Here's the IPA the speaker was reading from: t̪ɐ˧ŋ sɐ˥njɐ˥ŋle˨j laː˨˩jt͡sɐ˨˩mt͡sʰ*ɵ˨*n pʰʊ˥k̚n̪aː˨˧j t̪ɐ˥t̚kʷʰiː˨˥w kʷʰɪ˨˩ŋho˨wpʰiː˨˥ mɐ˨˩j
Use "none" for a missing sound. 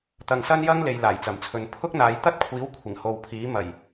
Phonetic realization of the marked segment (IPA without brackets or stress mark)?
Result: ɵ˨